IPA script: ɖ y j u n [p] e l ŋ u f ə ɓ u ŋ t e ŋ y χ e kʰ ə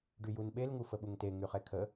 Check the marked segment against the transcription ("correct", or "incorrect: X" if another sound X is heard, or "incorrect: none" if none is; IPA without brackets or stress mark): incorrect: ɓ